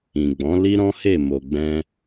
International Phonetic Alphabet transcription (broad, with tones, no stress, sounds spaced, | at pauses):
ĩ˨ ɡ͡b ɔ̃˨˦ l i˦ ɾ ɔ̃˦ h e˦˨ m o˨ ɡ͡b ɛ̃˧